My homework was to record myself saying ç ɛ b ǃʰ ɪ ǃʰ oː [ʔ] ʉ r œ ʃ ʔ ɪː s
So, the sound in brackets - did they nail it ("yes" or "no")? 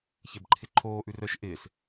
yes